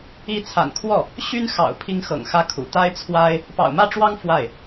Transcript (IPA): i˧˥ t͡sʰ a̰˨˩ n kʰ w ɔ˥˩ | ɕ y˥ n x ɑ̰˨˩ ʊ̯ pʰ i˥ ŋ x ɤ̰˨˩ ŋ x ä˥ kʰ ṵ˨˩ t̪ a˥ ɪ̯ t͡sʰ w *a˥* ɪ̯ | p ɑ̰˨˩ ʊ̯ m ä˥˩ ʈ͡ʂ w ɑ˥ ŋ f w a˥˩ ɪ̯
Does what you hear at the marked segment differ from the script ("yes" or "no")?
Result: no